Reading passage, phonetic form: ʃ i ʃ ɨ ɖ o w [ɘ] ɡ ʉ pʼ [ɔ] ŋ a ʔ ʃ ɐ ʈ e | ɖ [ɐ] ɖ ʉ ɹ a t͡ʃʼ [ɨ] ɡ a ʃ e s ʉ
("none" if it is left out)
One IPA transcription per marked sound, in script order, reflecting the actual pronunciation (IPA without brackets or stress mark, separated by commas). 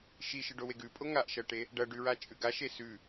e, o, ɐ, ʉ